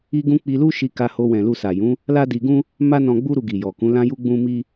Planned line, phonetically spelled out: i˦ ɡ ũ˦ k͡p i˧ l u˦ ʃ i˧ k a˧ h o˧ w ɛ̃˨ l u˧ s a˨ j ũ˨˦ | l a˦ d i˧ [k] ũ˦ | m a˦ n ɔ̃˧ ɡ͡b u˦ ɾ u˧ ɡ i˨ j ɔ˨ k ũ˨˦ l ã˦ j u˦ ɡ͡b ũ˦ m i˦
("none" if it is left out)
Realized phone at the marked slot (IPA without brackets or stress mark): ɡ